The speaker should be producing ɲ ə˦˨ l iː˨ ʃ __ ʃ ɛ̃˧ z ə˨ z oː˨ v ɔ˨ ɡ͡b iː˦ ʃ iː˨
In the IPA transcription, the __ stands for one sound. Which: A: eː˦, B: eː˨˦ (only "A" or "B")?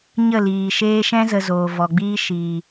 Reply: A